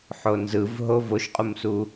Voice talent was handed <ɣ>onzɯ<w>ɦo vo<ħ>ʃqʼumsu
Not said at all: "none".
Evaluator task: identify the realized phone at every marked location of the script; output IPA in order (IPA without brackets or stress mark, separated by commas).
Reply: ħ, v, none